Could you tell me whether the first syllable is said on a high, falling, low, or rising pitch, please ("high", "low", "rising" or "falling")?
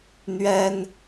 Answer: high